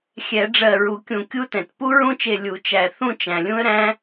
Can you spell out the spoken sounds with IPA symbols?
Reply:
xʲɛ˨˩˦ɖ͡ʐɜ˧˩ɹu˨˩˦ kʲũ˧˩kʲu˦˥tɛ̃˩t pu˦˥ɹũ˥˧t͡ʃe˧˩ lʲu˨˩˦t͡ʃæ˧˩ θũ˥˧t͡ʃæ̃˩lʲũ˦˥ə̯ɾæ̃˦˥

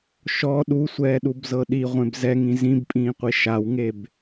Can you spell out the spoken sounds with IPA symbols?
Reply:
ʃɔ ɗusʷɛːɗubzɤ ɗiʁʷẽb zɛŋĩ zĩbpʼĩːqʷi ʃawŋeb

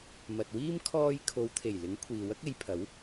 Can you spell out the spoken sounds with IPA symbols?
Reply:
mɐ˨t̚wiː˥m kʰɔː˧j kʰo˨˧wt̪ʰe˨˩jlɪ˨˥ŋ kʷʰiː˨wɐ˥k̚e˨˧jpʰɐ˨˥w

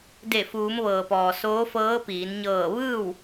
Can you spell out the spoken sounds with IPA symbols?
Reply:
de˧˩fuː˩˧mʋɤː˩pɔː˩ soː˧˥fɤː˧˥piː˩˧n ɲɤː˧˩ ʋɯː˥˨w

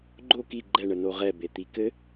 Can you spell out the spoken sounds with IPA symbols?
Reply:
ɡ͡ǃo ki ɡ͡ǃɛ ɳənoʁɛ bet̪ikɘ

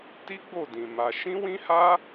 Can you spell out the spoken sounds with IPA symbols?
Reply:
ti˦ɡ͡bo˦˨dĩ˨ ma˧ ʃĩ˦wĩ˦ha˦

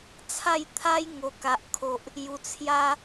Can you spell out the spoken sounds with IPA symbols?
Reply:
t͡sʰa˥˧jt̪ʰa˦j ŋo˨˩ ka˨ʔkʰo˨ʔ | ju˨˩t͡sʰja˦

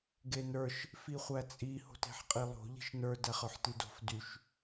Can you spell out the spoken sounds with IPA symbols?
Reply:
ɡenə˞ʃ | fiχʷæt͡sʼi ho̤te̤ħqʼilˠo̤ ʎi̤ʃnə˞ dæχə˞ħtido̤f dyʃ

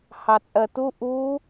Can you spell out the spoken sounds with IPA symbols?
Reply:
hɑt͡sʼɜtu ʔu

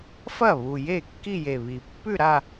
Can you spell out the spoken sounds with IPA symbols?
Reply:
fɐ˥˩βu˨˩ je˥˩kːi˥˧je˨˩βi˨˩ pːʉ˥˧ɾa˥˧

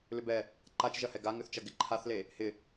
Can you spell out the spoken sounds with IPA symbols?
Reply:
lʏbɛ | ǃat͡ʃʒɐhɛ ɡaŋʏθt͡ʃɐ ɡɪǃʰaθle | hɪ

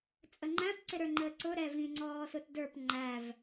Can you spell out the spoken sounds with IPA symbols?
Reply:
t͡sʼəŋ͡ǃæ̃p ǀɪɾə˞ŋ͡ǃəːǀʊ ɾɛvĩ ŋ͡ǀɔːsʊtdə˞p ŋ͡ǃæv

